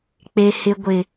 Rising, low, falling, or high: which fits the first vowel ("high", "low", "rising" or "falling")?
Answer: low